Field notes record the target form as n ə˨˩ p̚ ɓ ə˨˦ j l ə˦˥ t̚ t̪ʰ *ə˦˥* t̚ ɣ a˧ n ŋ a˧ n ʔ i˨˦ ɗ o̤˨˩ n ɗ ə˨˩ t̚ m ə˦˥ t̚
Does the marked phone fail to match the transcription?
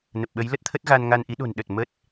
no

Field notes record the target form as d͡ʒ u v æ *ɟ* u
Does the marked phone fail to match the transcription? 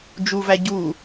no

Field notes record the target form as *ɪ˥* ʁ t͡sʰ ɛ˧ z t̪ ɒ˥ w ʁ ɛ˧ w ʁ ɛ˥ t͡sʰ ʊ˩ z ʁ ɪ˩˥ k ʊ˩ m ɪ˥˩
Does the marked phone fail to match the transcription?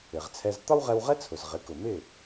yes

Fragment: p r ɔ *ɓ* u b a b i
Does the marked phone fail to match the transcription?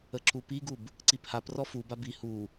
yes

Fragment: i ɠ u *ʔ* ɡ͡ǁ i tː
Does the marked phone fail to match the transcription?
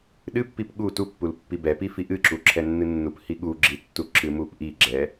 yes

